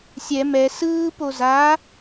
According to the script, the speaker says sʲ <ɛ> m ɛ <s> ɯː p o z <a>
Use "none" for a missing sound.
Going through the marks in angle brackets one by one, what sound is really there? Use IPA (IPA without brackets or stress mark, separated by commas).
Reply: ɛ, s, a